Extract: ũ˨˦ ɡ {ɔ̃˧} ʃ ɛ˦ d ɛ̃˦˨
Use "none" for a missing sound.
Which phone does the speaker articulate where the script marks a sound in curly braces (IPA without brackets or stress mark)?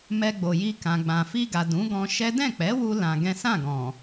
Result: ɔ̃˧